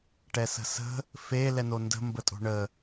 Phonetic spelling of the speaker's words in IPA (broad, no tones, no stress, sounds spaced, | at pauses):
ʈ ɛ s ə̤ s ə̤ | f e l ɛ n o n d ə̤ m b ə tʼ o̤ ɳ ə